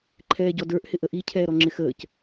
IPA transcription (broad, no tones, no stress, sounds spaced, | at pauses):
ǃʰ ɛː ɟ ɔ d ə˞ ʔ h ɪ ʔ ə ʔ i cʰ ɛː ɾ ɔ ŋ͡ǁ ɪ x əː c